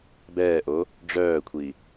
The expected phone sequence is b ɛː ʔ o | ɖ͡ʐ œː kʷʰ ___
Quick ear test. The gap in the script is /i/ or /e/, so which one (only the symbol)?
i